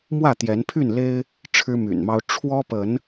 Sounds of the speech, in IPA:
mwä˥˨t̪jɛ˨˦npʰy˥˨n le˦ɪ̯ | ʈ͡ʂʰɻ̩˦my̰˨˩nmɑ˦ʊ̯ ʈ͡ʂʰwɔ˦pə˨˦n

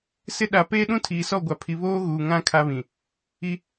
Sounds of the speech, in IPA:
sɪ˦ɗa˨ peː˦ɗũ˦tʰiː˨sɔ˦˨ ɡʷa˨pʰi˨βoː˦ ɣuː˨ ŋã˦ kʰa˦βĩ˨ | i˦

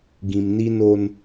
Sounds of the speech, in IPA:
ɡĩ˨mni˦no˦n

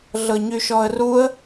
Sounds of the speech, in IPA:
ɮɤɲyʃɔə̯ruə̯

